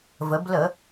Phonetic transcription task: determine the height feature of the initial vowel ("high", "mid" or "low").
mid